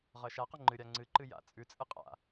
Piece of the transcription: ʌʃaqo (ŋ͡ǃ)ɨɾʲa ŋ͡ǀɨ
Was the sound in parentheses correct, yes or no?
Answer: yes